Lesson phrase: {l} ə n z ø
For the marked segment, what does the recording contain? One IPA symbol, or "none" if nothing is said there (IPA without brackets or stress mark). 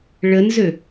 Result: ɭ